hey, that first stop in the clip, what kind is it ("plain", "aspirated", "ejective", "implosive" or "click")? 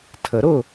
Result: aspirated